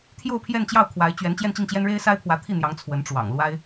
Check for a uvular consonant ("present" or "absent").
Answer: absent